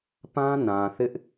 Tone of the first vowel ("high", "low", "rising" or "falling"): high